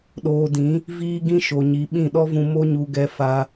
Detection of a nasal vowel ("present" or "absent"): present